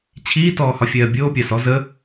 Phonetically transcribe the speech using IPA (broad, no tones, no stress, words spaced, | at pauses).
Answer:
t͡ɕʰiːtɔːhɒ fʲɜːbʲoː pʲasɔ zə